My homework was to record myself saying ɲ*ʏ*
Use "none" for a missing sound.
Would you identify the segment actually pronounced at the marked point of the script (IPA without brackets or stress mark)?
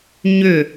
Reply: ʏ